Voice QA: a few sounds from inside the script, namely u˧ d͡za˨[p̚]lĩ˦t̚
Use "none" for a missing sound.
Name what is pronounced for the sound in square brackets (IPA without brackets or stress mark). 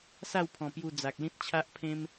k̚